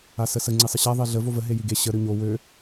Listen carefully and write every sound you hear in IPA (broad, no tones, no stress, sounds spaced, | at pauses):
a s ə s ə ŋ͡ǀ i sˤ ə ɕ a ðˤ e ɮ ə v o v ə ɦ e j i ɡ e ɕ ə ɾ ø ɲ o w ø